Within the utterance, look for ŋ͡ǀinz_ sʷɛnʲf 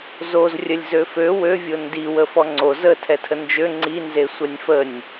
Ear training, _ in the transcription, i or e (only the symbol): e